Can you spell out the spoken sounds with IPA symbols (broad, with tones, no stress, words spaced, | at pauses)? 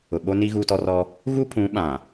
ʊ˨ɓo˦ni˦ ɣuː˦tɔ˦rɔ˦ | ɣu˦pʰũ˨˦ ɓã˨